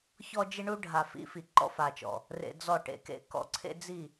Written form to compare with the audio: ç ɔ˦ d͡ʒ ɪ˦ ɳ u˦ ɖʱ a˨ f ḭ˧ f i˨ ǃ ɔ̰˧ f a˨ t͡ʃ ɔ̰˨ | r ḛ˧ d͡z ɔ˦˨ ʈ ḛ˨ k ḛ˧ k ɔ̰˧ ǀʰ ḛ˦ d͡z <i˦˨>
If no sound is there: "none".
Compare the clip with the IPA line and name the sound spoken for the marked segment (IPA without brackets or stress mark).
i˦˨